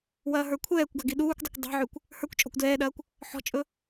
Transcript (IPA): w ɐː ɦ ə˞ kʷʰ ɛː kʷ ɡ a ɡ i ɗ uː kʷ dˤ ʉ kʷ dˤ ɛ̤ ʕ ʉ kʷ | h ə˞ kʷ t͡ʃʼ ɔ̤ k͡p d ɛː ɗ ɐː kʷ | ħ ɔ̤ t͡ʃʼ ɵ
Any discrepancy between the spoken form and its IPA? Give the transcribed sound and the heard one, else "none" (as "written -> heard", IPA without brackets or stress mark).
k͡p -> kʷ